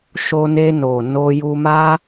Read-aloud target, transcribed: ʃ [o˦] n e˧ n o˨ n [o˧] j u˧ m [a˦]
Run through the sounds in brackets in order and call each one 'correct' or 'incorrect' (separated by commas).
incorrect, correct, correct